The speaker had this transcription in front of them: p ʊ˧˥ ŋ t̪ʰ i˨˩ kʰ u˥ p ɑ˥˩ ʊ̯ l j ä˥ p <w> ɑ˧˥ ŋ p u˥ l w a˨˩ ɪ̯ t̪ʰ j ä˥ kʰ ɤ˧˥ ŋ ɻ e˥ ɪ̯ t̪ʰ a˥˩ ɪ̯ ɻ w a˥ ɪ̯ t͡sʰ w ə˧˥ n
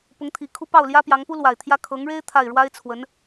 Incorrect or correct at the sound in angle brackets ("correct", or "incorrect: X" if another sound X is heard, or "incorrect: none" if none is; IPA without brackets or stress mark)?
incorrect: j